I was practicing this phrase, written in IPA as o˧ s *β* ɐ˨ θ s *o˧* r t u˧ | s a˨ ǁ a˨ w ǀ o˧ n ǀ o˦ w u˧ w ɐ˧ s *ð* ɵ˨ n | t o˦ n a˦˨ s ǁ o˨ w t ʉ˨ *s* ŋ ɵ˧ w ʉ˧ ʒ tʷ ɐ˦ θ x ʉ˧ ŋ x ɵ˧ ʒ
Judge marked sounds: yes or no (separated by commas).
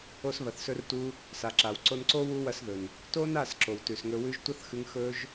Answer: yes, no, yes, yes